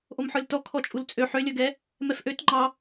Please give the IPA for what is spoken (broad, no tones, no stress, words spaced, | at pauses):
ʔomħɔlʲtɔ kʰɔt͡ʃʼult͡sʼø ħølʲœɡɛ | mɛfʔøt ŋ͡ǃɑ